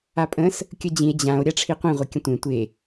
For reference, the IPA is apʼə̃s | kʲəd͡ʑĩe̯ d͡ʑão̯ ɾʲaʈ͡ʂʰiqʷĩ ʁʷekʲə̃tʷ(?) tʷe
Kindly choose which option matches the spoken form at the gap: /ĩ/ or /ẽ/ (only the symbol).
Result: ẽ